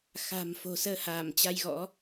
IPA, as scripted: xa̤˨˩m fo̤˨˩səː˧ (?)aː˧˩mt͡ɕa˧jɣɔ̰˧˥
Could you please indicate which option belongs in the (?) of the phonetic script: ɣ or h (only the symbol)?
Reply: h